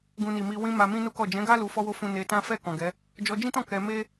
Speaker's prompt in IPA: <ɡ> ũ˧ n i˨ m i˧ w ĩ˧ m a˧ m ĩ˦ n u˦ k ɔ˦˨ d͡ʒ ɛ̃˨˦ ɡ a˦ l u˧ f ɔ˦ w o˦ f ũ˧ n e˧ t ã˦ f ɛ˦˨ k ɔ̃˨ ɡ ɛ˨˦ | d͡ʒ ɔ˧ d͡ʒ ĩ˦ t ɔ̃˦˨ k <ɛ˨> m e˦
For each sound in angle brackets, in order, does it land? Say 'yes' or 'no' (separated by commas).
yes, no